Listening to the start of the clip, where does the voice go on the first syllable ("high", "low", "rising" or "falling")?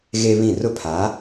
high